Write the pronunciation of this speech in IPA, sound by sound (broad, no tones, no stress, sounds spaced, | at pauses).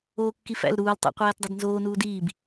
oː kː i f æ̰ l ɾ uː l tˤ ḛ qʷ æː t dˤ e d n z oː n uː d iː b